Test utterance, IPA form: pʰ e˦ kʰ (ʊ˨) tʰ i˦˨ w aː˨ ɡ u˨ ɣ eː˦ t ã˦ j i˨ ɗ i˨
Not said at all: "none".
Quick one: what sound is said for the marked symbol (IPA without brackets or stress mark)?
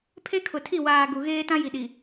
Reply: ʊ˨